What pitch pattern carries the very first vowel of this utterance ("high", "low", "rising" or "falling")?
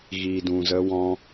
low